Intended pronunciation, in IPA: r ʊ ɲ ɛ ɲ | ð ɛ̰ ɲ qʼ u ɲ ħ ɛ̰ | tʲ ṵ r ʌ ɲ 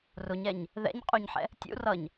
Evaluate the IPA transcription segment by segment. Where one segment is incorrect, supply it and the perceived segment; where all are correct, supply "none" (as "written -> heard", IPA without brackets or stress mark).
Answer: none